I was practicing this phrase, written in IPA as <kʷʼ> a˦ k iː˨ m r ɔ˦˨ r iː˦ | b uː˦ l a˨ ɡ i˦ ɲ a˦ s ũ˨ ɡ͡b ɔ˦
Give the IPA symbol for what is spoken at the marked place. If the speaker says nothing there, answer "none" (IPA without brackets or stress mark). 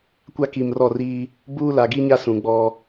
kʷ